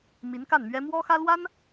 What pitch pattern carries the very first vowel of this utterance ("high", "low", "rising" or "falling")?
rising